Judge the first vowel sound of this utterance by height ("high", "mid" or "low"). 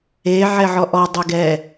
mid